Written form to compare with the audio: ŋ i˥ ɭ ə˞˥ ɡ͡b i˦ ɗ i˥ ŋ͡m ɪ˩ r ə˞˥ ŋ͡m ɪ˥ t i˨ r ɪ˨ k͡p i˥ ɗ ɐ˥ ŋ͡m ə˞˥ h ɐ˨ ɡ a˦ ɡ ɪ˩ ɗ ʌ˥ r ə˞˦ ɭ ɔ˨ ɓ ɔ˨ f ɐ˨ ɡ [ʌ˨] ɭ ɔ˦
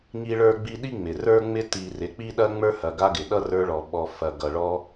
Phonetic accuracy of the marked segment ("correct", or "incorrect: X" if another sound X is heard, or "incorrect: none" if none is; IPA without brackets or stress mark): correct